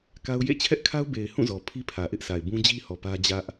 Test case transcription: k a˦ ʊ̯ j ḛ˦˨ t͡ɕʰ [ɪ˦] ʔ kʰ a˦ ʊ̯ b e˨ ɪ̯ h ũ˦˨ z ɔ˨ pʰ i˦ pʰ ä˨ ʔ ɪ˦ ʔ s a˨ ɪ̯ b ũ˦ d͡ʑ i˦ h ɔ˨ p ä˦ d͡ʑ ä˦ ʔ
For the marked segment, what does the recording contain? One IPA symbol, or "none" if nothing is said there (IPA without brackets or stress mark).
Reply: ɛ˦